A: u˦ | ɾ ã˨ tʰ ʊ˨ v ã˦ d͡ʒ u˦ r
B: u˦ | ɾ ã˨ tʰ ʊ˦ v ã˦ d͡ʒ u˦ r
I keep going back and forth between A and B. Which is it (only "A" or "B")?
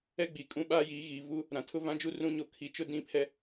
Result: B